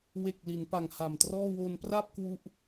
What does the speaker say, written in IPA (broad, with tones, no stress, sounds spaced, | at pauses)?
w e˨˩ k̚ l i˩˦ n p a˨˩ ŋ h a˨˩ m t r ɔː˥˩ w o˧ n p r a˥˩ p̚ k w u˥˩ ʔ